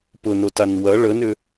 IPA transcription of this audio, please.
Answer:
p ʊ n o t a n w ɐ ɭ ə n ʏ

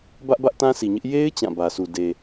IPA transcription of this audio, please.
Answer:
b ä˦ ʔ b ä˦ ʔ t ã˦ s i˨ ɲ ɪ˦ ʔ j e˦ ɪ̯ t͡ɕ ã˦˨ b ä˨ s u˨ d e˨

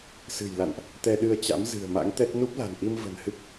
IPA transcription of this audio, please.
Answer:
s ɨ̤˨˩ j l a̰˧˨ n ʔ | t̪ ɛ˧ ɗ ɨ˧ ə̯ t͡ɕ a̰˧˥ m z ɨ̤˨˩ ə̯ m a̰˧˥ ŋ t̪ ɛ˦˥ t̚ n u˦˥ p̚ l a̤˨˩ n ʔ i˧ m v ə̤˨˩ n h ɨ˦˥ k̚

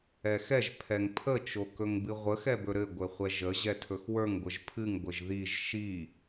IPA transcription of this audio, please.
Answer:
ɛ x ɛ ʒ pʰ ɛ ŋ pʰ ə t͡ʃ o k ɵ ŋ b ɨ ʁʷ ə x ɛ b ɵ ɾ ɘ ɡʷ ɘ χʷ ɛ ʒ ə ʑ ɛ tʰ ɵ x w ə˞ ŋ ɡʷ ə ʒ pʰ ɨ ŋ ɡʷ ɘ ʒ ð i ʒ ʃ i

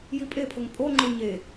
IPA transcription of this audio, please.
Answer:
j i pʼ e pʰ ʊ ŋ pʼ o ŋ͡ǃ ʊ ɲ e

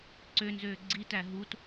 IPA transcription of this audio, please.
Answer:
ǀ ø n z øː ɡ͡ǀ i t æ ɦ u t

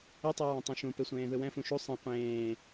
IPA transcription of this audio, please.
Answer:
ɯ tˤ ɯ ɹ ɛ̃ tˤ ũ ʃ ũ p e sʷ ẽː ð ɯ w ɛ̃ f ũ ʃ u sˤ ẽ qʷ ẽː

